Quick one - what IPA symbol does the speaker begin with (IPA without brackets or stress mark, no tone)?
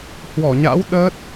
h